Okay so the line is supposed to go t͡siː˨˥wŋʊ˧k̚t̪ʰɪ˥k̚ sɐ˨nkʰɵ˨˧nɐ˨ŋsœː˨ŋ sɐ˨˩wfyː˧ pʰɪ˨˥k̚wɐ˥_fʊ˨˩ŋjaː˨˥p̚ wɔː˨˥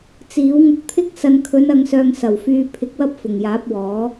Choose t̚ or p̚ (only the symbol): p̚